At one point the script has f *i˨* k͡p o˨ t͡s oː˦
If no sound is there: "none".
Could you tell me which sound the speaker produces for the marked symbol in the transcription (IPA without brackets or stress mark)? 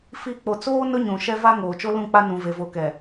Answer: i˨